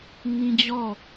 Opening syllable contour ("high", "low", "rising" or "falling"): high